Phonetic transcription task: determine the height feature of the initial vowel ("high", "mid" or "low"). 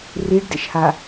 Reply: high